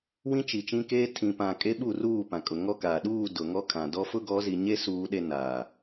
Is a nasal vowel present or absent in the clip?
present